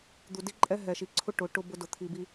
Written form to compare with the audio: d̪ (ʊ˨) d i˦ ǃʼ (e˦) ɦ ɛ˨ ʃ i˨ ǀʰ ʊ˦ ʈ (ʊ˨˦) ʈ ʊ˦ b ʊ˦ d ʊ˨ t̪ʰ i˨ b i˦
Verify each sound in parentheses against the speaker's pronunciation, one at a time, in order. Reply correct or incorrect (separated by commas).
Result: incorrect, incorrect, correct